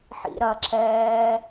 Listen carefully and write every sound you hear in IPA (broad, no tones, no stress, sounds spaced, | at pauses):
ħ ḭ ɾ ɐ ǁ ɛː